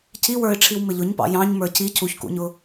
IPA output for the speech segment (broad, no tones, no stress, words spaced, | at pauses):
cʰiwə˞ɪ̯ʈ͡ʂʰiw mɪʎʊɲpɑ̰ jɑ̃ɲ mə˞cʰi cʰuçkṵɲʊ